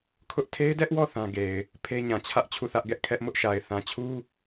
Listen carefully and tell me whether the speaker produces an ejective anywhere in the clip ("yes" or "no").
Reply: no